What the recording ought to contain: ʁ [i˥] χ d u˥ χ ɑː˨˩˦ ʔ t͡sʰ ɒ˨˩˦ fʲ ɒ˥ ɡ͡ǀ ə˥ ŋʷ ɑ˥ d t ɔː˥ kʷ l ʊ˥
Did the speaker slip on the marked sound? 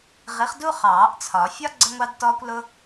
yes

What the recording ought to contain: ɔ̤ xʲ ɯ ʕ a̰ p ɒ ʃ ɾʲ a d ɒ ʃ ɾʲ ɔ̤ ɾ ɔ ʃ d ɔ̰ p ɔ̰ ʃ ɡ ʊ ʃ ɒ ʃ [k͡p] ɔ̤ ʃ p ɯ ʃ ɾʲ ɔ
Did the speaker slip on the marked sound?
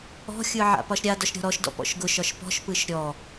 yes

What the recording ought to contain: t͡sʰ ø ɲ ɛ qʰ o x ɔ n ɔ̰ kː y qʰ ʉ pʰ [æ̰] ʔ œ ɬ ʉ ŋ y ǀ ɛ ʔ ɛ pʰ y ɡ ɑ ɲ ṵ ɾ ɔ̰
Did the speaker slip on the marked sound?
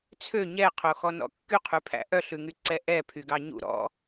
no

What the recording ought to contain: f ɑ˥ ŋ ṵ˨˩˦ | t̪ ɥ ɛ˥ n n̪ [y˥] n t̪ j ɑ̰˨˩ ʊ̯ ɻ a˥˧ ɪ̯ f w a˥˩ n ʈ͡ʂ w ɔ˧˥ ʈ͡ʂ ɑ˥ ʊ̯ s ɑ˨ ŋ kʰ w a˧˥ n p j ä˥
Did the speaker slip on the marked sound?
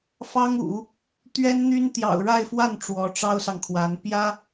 no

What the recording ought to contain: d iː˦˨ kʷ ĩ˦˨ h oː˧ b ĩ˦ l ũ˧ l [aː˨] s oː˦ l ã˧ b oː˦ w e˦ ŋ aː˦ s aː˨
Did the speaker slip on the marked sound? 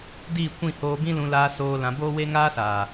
yes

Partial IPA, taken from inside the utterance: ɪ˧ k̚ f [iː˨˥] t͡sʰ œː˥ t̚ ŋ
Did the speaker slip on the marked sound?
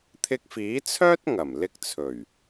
no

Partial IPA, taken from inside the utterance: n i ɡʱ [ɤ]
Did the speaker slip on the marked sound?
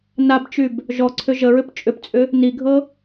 no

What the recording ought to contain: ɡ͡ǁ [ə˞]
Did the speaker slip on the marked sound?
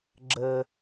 yes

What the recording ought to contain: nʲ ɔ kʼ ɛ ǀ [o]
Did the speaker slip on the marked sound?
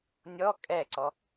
yes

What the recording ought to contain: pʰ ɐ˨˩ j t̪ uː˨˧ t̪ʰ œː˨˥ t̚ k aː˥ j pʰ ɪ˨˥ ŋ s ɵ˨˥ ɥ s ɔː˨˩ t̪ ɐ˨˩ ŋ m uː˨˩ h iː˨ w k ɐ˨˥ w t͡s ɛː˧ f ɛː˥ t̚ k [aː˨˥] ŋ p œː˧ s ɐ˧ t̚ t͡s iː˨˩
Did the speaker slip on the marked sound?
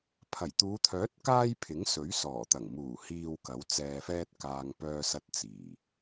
yes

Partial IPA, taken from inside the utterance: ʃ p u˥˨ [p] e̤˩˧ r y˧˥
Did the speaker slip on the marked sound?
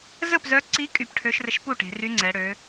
yes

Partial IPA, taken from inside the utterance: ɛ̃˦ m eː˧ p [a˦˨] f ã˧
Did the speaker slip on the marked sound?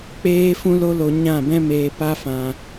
yes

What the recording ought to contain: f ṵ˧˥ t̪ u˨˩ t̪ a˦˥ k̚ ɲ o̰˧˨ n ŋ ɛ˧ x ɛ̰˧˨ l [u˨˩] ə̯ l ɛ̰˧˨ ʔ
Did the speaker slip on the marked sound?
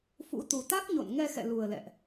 no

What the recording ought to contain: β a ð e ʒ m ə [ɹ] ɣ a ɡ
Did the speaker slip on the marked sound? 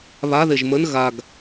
yes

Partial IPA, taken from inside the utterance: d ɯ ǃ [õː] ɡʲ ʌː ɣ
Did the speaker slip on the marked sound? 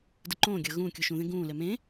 no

